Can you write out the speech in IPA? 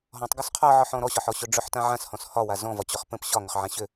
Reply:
ɦɔ̃tˤɡɵs qʰɒʕɒħɔ̃ ɾɔɕɒħɔɕɵ ɖ͡ʐɵħtã ʕãshɔ̃s hɒwa zɔ̃vɒt͡ɕɵχ pə̃p ɕɒŋʏχʕã ɕʏ

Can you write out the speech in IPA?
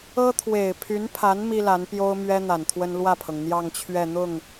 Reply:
ɤ˥t̪ʰwe˨˩ɪ̯pʰy˧˥npʰa˧˥n mi˥la˧˥n pjo˥ʊ̯mɥɛ˥ n̪a˨˩nt̪ʰwə˥n lwä˥˩pʰɤ˩ŋ n̪jɑ˥˧ŋt͡ɕʰɥɛ˥˧ n̪ʊ˥˩ŋ

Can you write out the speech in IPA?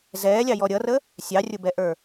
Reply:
zɛːlʲɑjɔ ɾʲʌrə | sʲɑrʲʊbɛʔə˞

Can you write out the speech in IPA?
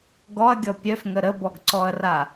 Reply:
ɡɔɐ̯ɡʲɔ pʲœfŋə ɾəbɔɡǀɔɐ̯ra

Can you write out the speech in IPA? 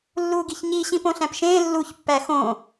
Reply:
lːuːɡiçɲi ɕĩpõɬæ̃pʃẽː lːuç pːæxõ

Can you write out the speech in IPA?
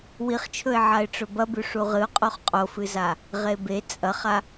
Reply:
wiχt͡ʃʰɵɪ̯ ʕaɪ̯ʈ͡ʂɵbɐbʉ ʂuʁɨʊ̯ qʼoχqʼofɨza | ʁebe t͡sʼɐχa

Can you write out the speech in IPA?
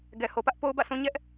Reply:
ɡɛ˨ho˨pä˦ʔ po˦ʊ̯bä̰˦˨sũ˦ ɲɛ˦ʔ

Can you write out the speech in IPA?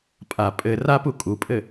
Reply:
pʼa pʼɘ rapu kʼupʼɘ

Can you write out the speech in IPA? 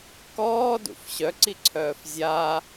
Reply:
kɔːdṵf ɕœǀiǀʰœːf zʲa

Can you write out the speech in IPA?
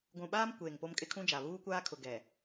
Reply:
ɡʷũ˨ɓaː˦m kʷeː˨ŋ po˦mkʼɪ˦kʰũ˦d͡ʒa˨ βuː˦kʷaː˦kʰʊ˨ ɡɛ˨

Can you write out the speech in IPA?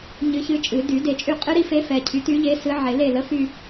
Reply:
ɲɨ˧˥çɨ˧˥t͡ʃʼɨ˨˩˦ dy˨˩˦de˨˩˦t͡ʃʼy˦˨qʼɨ˥ ɾi˥fe˧˥fɛ˨cʰy˩˥ ty˧˥ʎe˧˥ sɨ˧˥ʕe˨˩˦ le˦˨lə˧˥fy˦˨

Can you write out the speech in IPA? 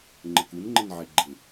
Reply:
ŋ͡ǃəkunŋ͡ǃɪn ʕeɡ͡ǃɪ

